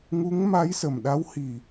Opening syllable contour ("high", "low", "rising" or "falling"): rising